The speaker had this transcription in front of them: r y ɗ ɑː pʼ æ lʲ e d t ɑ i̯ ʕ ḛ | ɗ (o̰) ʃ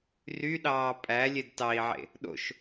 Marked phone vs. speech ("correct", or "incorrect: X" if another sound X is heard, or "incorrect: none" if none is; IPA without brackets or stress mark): correct